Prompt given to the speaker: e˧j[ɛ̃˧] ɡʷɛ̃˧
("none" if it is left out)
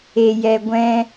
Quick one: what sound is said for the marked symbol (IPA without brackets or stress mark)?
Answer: ɛ˧